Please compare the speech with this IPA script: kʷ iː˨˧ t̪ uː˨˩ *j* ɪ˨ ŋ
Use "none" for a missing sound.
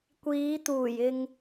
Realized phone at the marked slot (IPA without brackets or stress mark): j